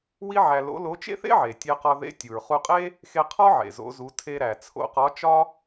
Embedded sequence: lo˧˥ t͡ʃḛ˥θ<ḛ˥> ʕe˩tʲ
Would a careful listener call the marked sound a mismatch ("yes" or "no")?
no